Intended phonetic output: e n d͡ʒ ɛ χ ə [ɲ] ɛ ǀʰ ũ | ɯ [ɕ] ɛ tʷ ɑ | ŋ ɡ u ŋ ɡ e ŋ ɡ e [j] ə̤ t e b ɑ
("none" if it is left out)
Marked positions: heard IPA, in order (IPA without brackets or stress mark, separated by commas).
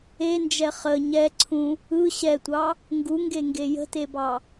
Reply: ɲ, ɕ, j